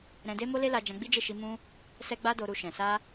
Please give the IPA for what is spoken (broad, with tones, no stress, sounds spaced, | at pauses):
ɾ ɛ̃˧ d e˦ m o˦ l e˦ l a˧ d͡ʒ ã˧ ɡ͡b i˦ d͡ʒ e˦˨ ʃ i˧ m ũ˧ | s ɛ˦ ɡ͡b a˦ d o˧ ɾ u˧ ʃ ɛ̃˨ s a˧